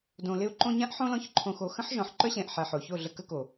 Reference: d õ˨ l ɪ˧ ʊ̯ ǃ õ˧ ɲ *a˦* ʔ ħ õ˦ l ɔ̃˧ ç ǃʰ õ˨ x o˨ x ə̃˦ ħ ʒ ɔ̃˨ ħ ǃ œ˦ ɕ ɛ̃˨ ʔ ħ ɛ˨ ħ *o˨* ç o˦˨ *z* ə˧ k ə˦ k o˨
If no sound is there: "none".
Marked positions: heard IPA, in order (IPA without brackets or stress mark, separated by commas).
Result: ã˦, o˨, ɮ